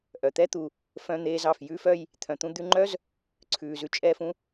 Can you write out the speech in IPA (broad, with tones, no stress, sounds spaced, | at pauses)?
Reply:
ʔ œ˩ t̪ ɛ˦ t̪ u˩ | f œ̃˦ n̪ eː˦ z ɑ˨ f j ʉ˥ f œ˦ j | t̪ʰ œ̃˨ t̪ ũ˦ d̪ ʉ˦ ŋ͡ǃ œ˥ z | ǀʰ ʉː˨ z ʉ˨ t͡ʃʼ ɛː˦ f ũ˥